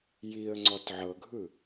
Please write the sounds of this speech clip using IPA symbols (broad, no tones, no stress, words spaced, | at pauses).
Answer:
jiə̯ ŋ͡ǀɔtʕɤɡʱɯ